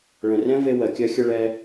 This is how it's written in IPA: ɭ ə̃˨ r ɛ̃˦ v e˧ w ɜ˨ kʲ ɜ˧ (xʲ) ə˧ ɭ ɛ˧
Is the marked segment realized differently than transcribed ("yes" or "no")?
no